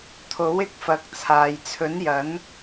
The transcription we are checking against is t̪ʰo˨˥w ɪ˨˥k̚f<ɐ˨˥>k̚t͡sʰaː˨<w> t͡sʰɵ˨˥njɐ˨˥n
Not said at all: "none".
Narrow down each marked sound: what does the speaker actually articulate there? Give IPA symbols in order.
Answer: ɐ˨˥, j

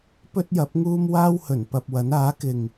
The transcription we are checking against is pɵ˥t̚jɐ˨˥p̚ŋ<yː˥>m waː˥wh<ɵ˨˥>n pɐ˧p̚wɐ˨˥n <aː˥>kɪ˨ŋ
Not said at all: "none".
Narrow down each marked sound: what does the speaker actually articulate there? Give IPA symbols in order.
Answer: uː˥, ɵ˨˩, aː˨˥

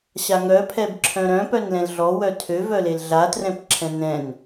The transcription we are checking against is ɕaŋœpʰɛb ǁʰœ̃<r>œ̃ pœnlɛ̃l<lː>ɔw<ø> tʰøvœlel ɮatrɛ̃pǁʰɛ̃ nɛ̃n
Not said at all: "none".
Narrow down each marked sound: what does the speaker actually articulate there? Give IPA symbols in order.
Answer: ɾ, ɮ, œ

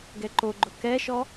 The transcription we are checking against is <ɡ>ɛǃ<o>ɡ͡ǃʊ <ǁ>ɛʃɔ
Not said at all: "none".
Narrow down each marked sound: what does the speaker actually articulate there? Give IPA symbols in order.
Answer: ɡ, o, k

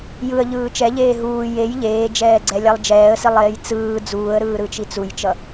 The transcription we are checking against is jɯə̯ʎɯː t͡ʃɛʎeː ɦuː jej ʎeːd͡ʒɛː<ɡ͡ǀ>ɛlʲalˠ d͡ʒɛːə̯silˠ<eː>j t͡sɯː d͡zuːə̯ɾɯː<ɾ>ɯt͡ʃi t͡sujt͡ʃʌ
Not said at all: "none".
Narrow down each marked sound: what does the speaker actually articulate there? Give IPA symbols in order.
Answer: ɡ͡ǀ, eː, ɾ

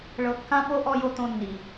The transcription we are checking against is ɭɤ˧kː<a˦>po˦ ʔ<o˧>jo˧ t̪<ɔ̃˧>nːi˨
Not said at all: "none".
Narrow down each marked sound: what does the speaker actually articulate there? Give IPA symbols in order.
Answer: ã˦, ɔ˧, õ˧

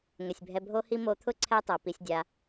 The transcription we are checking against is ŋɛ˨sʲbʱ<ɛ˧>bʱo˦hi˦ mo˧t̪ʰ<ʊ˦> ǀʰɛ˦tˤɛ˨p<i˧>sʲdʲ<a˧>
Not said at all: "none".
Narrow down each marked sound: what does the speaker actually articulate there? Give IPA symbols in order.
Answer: ɛ˧, ʊ˦, i˧, a˧

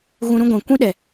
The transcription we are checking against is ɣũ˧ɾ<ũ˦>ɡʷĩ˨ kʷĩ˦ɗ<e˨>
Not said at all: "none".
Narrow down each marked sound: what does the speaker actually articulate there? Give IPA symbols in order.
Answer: ũ˦, ɛ˨

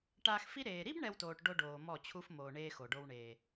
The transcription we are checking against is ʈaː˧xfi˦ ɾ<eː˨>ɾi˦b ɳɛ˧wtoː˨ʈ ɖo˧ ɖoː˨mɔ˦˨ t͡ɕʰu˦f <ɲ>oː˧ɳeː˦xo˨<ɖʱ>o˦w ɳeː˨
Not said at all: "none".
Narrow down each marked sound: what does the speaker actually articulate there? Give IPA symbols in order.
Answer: eː˨, m, ɖ

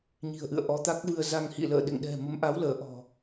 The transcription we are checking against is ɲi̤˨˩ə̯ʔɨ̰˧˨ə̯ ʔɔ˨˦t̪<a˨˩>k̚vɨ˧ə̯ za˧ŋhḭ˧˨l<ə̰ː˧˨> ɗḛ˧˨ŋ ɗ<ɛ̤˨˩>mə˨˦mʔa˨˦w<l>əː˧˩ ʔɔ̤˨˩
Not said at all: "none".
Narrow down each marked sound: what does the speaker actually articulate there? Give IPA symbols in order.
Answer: a˦˥, ə̰ː˧˨, ɛ̤˨˩, l

